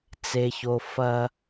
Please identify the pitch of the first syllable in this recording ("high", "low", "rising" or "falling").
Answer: high